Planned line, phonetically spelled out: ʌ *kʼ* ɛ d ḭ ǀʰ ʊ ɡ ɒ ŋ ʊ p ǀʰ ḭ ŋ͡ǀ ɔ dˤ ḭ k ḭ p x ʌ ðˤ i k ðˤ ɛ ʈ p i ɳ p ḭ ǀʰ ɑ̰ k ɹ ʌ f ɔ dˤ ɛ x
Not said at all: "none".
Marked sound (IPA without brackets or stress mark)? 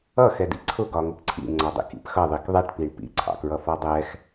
x